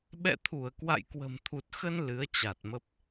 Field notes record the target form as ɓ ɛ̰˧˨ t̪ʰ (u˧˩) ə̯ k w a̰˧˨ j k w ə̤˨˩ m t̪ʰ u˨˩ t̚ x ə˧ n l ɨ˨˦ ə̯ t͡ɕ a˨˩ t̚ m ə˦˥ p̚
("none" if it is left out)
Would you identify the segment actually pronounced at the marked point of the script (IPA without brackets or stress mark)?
u˧˩